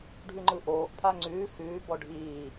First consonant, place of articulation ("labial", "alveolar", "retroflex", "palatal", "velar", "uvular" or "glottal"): retroflex